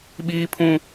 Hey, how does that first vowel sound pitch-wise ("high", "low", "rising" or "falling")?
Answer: high